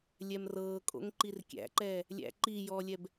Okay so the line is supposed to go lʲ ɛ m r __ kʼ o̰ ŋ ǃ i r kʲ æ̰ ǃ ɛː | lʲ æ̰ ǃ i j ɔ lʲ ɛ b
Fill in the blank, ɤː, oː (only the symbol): ɤː